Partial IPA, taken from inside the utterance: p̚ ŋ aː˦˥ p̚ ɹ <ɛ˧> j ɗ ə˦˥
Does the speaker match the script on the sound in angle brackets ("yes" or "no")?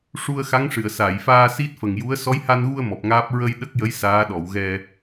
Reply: no